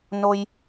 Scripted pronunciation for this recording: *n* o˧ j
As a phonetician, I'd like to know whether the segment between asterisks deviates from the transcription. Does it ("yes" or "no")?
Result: no